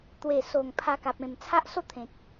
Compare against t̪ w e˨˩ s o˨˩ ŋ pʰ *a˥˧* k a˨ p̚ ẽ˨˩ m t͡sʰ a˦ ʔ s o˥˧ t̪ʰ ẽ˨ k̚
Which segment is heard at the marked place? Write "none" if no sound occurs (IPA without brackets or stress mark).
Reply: a˧